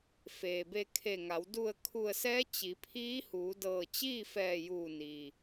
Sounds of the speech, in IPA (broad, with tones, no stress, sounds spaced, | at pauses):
f eː˩ b e˧ kʰ e˧˩ ŋ a˩˧ w d u˧˩ ə̯ kʰ u˧˩ ə̯ s ɛː˧˥ t͡ɕ i˩˧ pʰ iː˧˥ h uː˩˧ d ɤː˧˩ t͡ɕ iː˥˨ f ɛː˧˩ j uː˧˩ n iː˩